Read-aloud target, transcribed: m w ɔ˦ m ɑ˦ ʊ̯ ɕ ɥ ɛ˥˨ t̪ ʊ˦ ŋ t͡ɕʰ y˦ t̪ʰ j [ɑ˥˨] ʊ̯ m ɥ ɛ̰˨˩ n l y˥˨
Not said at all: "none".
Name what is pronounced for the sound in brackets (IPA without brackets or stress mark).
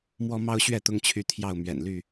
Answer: ɑ˥˨